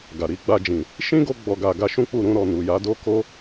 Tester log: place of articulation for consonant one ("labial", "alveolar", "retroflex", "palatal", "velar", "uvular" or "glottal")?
velar